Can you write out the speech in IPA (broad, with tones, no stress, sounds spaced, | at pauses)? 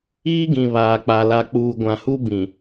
iː˦ ɡ ĩ˨ β aː˨ k͡p a˨ l a˨ k͡p uː˨ ɡʷ ã˨ h u˦ b ĩ˨